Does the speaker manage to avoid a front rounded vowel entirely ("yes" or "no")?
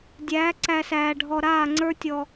yes